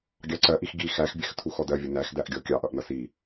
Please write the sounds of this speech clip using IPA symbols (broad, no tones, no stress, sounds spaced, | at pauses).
ɡʲ ɑ ǀ ɜ ʔ i x ɡ i x æ x bʲ ɛ x tʰ u x ɔ d ɜ vʲ ə n æ x d æ ʔ ɡʲ ɔ kʲ ɑ ʔ ʌ ʔ n ʌ s i